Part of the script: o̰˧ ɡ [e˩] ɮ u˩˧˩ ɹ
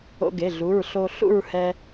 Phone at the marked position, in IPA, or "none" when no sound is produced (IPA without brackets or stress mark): e˩˧˩